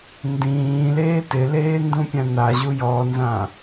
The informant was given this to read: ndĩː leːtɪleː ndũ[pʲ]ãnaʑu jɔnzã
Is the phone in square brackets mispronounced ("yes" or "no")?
no